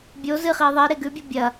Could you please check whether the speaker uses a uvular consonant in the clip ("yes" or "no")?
yes